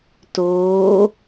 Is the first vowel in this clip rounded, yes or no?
yes